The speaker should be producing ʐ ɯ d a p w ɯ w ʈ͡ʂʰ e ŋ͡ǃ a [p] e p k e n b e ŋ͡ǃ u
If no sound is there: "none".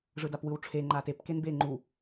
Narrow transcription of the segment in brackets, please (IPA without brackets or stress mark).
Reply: t